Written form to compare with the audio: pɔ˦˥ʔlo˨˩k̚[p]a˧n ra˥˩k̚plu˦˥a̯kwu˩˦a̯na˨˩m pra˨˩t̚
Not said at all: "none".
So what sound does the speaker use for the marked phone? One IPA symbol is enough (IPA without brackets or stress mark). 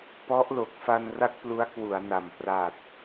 f